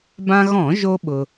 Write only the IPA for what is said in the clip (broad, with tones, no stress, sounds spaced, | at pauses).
b ã˧ ɣ ɔ̃˧˩˧ ʒ o˧ ɓ ʊ˧